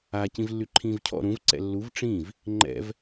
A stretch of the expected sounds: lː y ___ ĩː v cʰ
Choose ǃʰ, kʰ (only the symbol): ǃʰ